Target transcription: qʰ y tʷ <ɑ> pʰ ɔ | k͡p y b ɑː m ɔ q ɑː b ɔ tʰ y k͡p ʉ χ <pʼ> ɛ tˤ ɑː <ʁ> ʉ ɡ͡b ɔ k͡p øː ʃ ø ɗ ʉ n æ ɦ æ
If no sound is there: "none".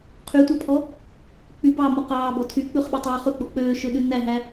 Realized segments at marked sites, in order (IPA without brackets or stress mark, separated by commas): ɑ, ɓ, χ